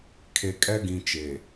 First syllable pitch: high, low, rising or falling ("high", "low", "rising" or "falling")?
low